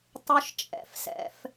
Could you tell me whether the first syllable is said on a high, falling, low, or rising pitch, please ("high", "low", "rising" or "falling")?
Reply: high